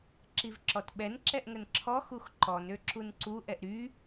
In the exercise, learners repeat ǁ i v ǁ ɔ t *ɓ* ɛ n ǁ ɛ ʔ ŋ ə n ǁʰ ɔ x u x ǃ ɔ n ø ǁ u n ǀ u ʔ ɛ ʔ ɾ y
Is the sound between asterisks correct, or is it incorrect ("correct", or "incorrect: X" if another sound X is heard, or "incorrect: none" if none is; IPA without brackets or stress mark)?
correct